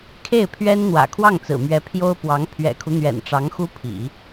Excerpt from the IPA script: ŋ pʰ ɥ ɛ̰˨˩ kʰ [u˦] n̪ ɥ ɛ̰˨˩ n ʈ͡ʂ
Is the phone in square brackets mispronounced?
no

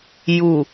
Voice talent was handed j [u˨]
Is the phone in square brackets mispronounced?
no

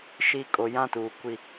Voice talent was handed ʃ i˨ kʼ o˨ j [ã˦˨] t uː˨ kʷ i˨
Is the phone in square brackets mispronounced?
no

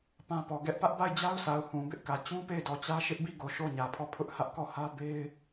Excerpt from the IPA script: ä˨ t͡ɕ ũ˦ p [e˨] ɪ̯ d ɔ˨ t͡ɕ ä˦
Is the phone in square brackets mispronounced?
yes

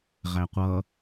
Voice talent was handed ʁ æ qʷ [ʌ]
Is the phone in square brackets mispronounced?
no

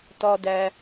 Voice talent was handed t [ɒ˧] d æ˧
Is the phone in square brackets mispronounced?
no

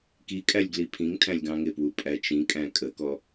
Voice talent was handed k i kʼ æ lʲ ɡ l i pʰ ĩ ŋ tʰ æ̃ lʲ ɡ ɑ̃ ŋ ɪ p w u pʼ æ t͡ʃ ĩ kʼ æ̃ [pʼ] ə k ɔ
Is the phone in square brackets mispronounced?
yes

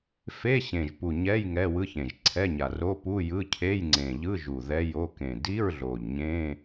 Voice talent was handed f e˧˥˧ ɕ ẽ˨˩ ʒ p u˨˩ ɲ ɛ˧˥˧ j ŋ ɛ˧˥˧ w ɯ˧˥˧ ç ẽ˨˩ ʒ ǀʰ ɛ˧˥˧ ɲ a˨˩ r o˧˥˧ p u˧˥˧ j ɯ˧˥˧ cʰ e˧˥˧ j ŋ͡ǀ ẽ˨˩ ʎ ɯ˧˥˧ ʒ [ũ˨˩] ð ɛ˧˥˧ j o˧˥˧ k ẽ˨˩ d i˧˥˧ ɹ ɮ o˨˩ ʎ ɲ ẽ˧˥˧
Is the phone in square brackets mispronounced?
yes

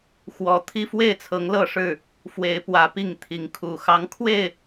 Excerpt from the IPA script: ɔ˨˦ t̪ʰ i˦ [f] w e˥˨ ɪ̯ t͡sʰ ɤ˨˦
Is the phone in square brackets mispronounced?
no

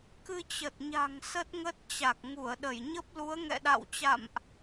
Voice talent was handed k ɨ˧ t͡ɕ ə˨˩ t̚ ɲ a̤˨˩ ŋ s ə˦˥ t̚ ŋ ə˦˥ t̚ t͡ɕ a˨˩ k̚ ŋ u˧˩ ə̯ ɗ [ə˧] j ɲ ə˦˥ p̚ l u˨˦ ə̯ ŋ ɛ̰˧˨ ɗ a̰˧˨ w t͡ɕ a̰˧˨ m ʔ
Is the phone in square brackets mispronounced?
yes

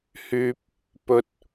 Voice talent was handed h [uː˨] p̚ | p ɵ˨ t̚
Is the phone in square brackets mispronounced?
yes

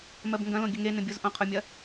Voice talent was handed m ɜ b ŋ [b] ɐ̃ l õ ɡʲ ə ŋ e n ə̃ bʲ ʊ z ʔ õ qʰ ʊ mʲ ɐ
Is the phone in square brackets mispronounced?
yes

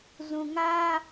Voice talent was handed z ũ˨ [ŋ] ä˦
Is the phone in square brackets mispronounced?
no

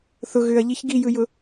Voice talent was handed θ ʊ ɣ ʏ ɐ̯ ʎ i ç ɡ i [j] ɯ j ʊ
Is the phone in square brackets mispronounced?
no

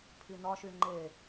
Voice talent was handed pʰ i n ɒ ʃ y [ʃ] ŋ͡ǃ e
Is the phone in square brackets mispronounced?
yes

